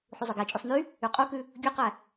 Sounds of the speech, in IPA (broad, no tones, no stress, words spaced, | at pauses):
ħuzˤɵɡæt͡ʃʼʉsˤ ny | yqʼukʉ | ɡʲoqæ